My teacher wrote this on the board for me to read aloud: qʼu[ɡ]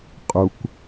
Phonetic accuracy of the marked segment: incorrect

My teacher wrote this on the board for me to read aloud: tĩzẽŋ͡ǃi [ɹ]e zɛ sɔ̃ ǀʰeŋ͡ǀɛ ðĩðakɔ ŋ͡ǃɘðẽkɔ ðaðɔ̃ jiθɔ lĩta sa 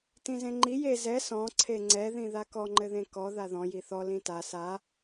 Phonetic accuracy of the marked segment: incorrect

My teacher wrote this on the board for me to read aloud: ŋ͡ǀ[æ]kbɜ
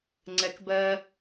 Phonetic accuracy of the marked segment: incorrect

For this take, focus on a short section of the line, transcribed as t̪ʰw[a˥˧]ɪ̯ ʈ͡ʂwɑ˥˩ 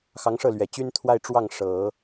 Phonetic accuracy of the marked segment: correct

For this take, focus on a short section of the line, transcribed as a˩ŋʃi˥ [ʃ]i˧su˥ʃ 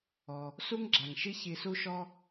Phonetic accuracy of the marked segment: incorrect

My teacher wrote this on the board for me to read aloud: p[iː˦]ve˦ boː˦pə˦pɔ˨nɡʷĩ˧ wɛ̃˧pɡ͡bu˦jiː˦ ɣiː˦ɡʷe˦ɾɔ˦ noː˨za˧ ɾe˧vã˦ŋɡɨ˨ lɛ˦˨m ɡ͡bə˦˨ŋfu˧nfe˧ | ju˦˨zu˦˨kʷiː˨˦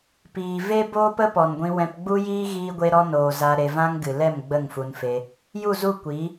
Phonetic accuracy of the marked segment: incorrect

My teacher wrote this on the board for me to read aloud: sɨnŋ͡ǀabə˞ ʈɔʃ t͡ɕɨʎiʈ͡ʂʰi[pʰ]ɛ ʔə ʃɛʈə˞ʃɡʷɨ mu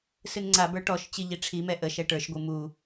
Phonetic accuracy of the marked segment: incorrect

